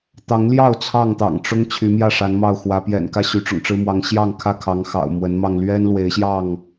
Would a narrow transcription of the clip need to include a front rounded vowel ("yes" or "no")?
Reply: yes